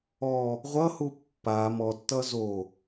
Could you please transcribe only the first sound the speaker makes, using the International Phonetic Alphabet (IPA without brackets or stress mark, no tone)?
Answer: ɔ